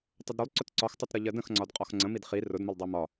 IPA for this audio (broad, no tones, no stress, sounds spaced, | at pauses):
tˤ ə d ɾ ʊ lˠ ǀ ʊ t ǀ ɒ x tˤ ʌ t ɾ ʌ ʎ ɜ d ə̃ x ŋ͡ǀ ɒ d qʼ ɒ x ŋ͡ǀ ə̃ m i d χ i r ʊ d m ʊ lˠ dˤ ɜ m ɒ